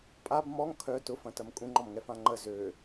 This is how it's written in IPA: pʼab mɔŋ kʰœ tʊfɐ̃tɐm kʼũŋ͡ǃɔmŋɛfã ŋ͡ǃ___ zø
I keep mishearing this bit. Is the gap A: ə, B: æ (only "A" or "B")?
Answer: A